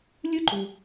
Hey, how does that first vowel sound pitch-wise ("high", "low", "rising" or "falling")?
high